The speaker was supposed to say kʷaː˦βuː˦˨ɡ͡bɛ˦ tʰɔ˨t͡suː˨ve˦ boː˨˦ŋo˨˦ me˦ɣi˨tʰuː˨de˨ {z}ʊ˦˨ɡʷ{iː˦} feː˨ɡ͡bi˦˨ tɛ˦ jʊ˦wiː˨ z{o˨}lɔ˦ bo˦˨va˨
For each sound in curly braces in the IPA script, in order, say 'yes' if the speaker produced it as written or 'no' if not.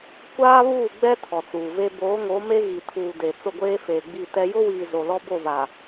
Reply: no, no, yes

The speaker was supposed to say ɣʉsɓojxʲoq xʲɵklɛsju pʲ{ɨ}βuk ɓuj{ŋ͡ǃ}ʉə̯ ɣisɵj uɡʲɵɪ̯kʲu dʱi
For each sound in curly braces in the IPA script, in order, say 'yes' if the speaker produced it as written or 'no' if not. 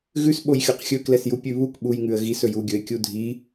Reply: no, no

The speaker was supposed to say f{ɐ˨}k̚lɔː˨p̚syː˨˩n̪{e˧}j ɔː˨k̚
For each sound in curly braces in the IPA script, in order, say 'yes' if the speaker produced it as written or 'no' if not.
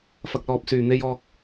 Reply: yes, yes

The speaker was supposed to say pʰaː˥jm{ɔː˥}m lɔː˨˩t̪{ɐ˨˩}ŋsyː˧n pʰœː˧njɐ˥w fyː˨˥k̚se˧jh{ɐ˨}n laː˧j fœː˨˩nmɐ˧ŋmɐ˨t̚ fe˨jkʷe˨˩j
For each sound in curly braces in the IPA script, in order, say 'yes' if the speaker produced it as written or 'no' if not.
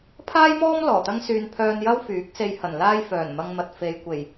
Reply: yes, no, no

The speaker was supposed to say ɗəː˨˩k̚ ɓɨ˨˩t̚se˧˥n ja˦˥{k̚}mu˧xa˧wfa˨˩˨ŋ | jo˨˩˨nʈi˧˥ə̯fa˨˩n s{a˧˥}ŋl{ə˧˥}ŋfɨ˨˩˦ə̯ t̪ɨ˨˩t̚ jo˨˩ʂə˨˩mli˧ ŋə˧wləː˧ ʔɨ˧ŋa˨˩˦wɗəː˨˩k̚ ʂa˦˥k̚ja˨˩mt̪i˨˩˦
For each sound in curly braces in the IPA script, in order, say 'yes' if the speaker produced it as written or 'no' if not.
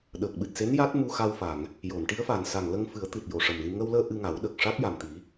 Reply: no, no, no

